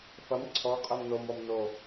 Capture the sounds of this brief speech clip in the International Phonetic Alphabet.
fɐm ǀʰɔ qʼɛmnom ɔmno

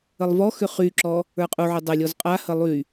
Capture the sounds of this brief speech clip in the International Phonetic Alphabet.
əlˠvɔxʏ χyǁɔ | ə˞qʼuʕy dˤɘlʲɔz qʼahə lˠy

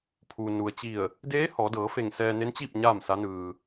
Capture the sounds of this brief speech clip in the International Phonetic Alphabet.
pʰuː˩nu˩ə̯t͡ɕi˧˩ə̯ | deː˧˥ hɔː˩˧dɤː˩˧fe˧˩ŋ sɛː˧ne˧˥nt͡ɕiː˥˨p̚ ɲaː˥˨msa˧˥nɯː˧

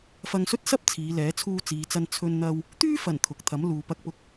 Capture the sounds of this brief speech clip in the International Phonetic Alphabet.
fɐ˧ŋsɵ˥t̚sɐ˥p̚ t͡sʰiː˨˧lɛː˨˥ t͡sʰuː˧t͡siː˨t͡sɐ˧n t͡sʰɵ˧nn̪ɐ˧w | t̪yː˥fɐ˨˩n t̪ʰʊ˨k̚ t̪ʰɐ˨˥m luː˨pɐ˧k̚pʊ˧k̚

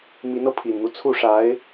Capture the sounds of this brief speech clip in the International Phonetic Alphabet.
mi˧˥nɤ˧pʰi˨˩nn̪u˦ t͡sʰu˥˩ʂa˧˥ɪ̯

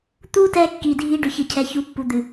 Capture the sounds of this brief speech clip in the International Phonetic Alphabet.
t̪u˦tɛ˧ kːi˨dʱi˧ ɖʏ˨çɨ˨cʰɛ˨çu˨˦ pːu˨d̪ɨ˨

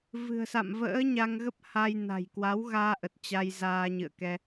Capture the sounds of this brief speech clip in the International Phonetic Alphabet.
vɨ̤˨˩ə̯sa̰˧˨mvə̰ː˧˥ ɲa˧ŋɣə˦˥p̚ha˧j na̤˨˩j kwa˨˦wɣaː˧ʔə˨˩t̚ t͡ɕa˧j zaː˧ɲɨ̰˧˨ə̯kɛ˧

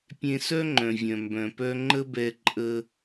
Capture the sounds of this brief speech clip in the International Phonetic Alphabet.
pʲẽ˧sœ˥ŋ͡ǃœ̃˩vʲœ̃˩ mbœ̃˩pœ˧ ŋ͡ǃə˥bɛ˧ ǃʼə˧

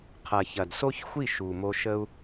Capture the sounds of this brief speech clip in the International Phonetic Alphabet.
qʰɐ˨ çɐ˨dso˦çxʷi˦˨ ʃu˨mo˧ ʃə˧u̯

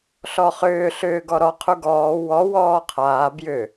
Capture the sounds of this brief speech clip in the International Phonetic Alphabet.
ɬɔχʏː ɬʏː ɡɔɾɔ qʰuɡɔː wɔ wɔːqʰaː bjʏ

